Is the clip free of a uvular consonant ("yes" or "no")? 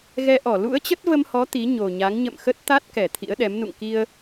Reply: yes